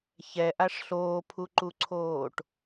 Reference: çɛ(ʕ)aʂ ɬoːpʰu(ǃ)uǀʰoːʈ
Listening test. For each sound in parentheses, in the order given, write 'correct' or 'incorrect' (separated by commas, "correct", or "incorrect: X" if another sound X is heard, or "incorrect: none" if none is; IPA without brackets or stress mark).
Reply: incorrect: ʔ, correct